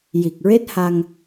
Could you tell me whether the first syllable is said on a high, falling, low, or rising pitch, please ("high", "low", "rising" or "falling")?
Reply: low